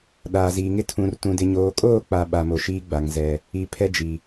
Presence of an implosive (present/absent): present